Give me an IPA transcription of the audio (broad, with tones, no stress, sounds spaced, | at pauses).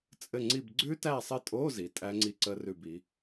t͡sʼ ɘ˦˨ ŋ͡ǀ i˦˨ b ɡ͡ǀ ʉ˦˥ t æ˦˨ sˤ ɘ˦˨ tʼ o˧˥˧ z i˩˧ tʼ æ˦˥ ŋ͡ǀ i˦˨ ǀ ə˦˥ r ʉ˦˨ b i˩˥